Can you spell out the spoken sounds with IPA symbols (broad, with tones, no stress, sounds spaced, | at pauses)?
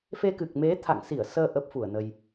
f e˧ k ɨ˨˩ k̚ m e˨˦ t̪ʰ a̰˧˨ ŋ s i˧˩ ə̯ s əː˧ ʔ ə˦˥ p̚ f u˧˩ ə̯ n ə˧ j